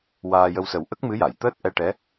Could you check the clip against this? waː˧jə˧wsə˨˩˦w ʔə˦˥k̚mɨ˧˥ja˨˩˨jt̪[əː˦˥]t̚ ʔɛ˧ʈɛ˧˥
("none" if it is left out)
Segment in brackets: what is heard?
əː˦˥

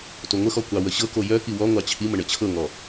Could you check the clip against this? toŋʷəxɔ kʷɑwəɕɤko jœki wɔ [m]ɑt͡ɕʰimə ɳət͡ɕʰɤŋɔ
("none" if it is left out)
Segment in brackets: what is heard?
ŋʷ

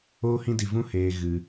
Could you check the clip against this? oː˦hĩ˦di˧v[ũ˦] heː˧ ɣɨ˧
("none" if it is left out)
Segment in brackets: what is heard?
ũ˦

